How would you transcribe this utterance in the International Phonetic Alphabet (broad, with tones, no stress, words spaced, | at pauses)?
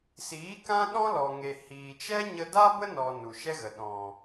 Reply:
siː˨˦kã˦ ɗɔ̃˦lɔ˨ŋe˨ hiː˨t͡ʃɛ˦ ɲə˧da˦bə˦ nɔ˨ nu˨ʃɛ˦ɣə˨ ɗɔ̃˨